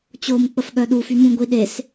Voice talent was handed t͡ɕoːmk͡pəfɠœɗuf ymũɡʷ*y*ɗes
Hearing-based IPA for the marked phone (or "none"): i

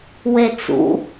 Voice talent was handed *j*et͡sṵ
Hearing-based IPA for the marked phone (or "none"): w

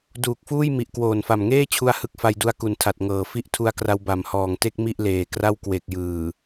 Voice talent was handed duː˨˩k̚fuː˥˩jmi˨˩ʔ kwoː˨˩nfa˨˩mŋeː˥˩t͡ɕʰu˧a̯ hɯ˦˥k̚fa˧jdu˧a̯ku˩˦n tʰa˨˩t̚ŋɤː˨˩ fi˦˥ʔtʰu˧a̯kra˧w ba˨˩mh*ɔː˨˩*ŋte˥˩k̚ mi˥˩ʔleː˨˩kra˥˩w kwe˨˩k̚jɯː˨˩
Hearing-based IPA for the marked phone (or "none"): ɔː˨˩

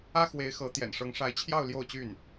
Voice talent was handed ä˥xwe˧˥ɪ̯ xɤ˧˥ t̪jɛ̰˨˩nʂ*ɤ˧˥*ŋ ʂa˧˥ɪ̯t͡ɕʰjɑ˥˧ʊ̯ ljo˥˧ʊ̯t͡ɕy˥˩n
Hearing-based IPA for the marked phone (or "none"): ɤ˧˥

